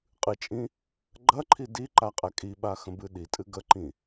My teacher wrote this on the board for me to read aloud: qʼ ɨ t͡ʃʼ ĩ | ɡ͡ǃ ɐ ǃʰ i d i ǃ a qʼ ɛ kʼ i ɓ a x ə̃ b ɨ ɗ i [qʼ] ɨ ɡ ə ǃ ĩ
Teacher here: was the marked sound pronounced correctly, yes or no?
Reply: no